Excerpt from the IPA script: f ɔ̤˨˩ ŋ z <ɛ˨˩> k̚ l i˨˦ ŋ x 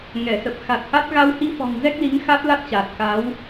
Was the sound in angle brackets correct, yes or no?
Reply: no